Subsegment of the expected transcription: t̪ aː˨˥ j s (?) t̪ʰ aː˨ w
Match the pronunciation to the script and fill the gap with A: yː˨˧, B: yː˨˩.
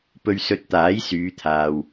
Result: A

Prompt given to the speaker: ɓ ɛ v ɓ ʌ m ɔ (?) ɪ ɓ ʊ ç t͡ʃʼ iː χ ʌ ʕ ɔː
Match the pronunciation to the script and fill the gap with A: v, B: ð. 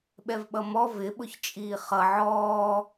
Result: A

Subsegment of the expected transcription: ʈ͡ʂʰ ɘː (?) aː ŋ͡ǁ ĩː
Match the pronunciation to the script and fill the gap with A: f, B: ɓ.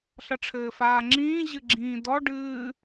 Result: A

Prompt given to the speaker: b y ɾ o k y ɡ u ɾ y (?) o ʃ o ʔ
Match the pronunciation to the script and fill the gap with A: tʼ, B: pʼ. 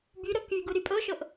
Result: B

